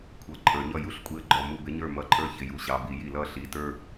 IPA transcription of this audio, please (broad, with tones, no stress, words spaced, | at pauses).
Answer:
kʷʰʌ˩˧˩ ǃʼə˞˧˩˧ɲʌ˥˩ ju˥˩ɬkʷʼi˧˥ə̯ɡ͡ǃɔ˩˧˩ mu˥˩bɪ˧˥ɲə˞˥˩ mʌ˧˥ǃʼə˞˥˧ çɪ˩˧˩ju˩˧˩ɕɑ˩˧˩ bi˧˩˧ji˧˩˧l ʌ˥˩ ɬi˩˧˩tə˞˥˧